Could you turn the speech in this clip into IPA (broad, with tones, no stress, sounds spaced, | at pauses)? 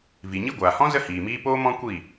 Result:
v i˨ ɲ i˦ ɡʷ aː˨ h ɔ̃˦ z ə˦ h iː˨ m iː˦ p oː˦ m ɔ̃˦ kʷ i˦˨